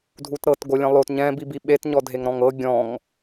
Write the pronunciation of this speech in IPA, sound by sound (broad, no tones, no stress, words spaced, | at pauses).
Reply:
dʱutɾɤt ɡolʲɛ̃lˠot ɲɛ̃ bibiɓet ɲɔdʱeŋɾɔ̃ŋɤ ɡʲɔ̃ŋ